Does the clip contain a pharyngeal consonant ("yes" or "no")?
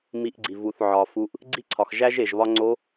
yes